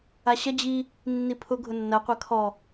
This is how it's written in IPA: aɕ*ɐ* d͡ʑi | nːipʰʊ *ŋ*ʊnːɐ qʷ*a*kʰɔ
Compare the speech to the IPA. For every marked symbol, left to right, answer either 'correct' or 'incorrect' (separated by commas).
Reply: correct, incorrect, incorrect